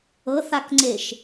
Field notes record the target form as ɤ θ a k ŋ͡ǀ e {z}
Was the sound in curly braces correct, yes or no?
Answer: no